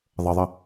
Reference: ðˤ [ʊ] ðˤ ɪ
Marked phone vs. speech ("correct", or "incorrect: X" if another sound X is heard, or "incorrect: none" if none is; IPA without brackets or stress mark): incorrect: ə